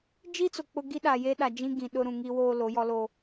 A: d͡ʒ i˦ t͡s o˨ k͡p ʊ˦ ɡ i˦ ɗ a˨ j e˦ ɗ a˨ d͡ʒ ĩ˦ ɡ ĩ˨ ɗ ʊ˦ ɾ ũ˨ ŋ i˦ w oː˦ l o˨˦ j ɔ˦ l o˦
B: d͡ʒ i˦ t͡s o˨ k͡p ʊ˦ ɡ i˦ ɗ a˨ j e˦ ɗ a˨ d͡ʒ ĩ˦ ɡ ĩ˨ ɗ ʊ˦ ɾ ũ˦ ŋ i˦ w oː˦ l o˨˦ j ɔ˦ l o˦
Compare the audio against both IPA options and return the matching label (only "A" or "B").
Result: A